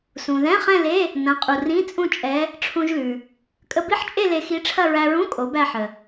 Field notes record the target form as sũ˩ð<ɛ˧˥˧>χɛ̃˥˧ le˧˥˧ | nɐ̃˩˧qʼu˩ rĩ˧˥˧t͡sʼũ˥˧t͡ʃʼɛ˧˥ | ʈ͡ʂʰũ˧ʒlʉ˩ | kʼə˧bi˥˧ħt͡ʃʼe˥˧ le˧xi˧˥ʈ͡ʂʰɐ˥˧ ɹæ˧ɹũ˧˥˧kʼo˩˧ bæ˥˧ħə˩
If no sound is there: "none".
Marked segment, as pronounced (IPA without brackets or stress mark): ɛ̃˧˥˧